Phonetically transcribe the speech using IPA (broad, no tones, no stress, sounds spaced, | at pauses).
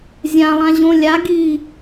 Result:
zʲ ã lˠ ã ʑ õ lʲ a ɡ i